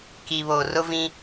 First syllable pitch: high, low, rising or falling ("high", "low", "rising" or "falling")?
low